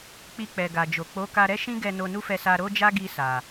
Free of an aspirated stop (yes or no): yes